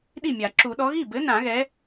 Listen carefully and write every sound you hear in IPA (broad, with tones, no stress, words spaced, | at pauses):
ɗi˥˩mʲa˨˩˦ ǁu˨˩˦ɗɔ˨˥ ɣi˥˩bɘ˨˥ nã˨˩˦ɣɛ˨˥